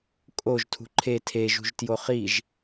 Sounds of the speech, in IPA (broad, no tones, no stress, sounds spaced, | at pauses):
kʼ o ʒ tʰ ṳ ǃʰ e tʰ e ʒ ṳ ʒ t j o χ i ʒ